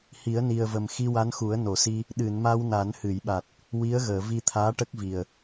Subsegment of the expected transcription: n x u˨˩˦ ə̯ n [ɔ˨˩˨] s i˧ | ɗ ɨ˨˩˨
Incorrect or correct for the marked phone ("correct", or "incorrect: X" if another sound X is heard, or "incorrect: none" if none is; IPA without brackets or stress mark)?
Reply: incorrect: o˨˩˨